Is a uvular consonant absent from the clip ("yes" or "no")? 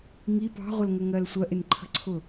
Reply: no